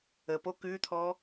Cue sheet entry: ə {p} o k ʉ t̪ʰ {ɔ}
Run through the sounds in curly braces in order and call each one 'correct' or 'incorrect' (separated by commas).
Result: correct, correct